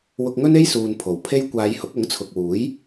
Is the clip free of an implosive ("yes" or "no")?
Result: yes